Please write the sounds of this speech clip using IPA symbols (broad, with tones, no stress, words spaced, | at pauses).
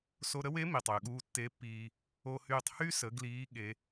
so˧ɾə˧˥we˧˥ mi˩tˤ yː˩ɠuː˧ tːe˧˥pːiː˧ | o˧hyː˧tˤ hy˥ sə˩˧ ɡliː˧˥ ɠe˧˥